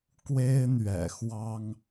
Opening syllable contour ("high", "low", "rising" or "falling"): high